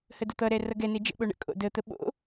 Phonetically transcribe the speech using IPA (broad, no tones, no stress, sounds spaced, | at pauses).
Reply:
h ə d ʊ t̪ ʌ ɾ ɛ r ʌ ɡ ɛ n e d͡ʒ ə̰ ɓ o ɳ ə̰ kʼ o̰ d ə t̪ ə ɓ o̰